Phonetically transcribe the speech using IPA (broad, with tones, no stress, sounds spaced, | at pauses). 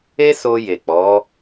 e˦ s o˧ j e˨ k͡p ɔ˨˦